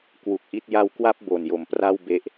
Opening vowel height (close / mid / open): close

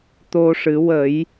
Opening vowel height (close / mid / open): mid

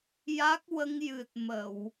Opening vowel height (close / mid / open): open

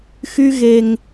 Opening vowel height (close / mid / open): close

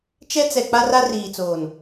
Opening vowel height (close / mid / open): mid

